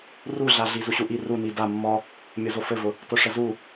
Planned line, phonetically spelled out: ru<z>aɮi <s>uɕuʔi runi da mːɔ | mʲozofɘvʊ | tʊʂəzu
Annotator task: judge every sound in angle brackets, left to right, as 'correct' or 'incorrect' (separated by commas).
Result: incorrect, incorrect